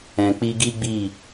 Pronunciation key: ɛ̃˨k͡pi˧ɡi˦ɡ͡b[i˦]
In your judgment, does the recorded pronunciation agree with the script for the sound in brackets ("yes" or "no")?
no